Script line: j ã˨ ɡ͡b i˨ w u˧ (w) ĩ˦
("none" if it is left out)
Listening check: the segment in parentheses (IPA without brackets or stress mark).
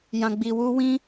w